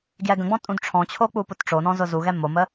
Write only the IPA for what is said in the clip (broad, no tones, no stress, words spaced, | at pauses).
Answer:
ɡjɛɡə̃ɡ͡bɔ̃ tʼũdʈ͡ʂʰɔ̃t͡ɕʰo k͡pupʊtʈ͡ʂonɔ̃ zʊzuɣɛ momə